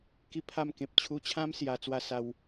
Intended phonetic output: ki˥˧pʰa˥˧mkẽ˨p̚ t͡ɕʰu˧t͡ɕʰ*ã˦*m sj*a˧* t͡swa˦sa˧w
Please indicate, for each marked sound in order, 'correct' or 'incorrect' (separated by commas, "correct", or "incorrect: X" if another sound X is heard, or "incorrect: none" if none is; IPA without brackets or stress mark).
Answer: correct, correct